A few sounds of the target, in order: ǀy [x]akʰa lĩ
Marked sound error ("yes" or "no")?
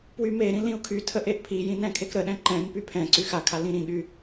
no